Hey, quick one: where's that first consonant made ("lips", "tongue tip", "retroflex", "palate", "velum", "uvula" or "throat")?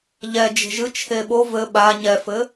palate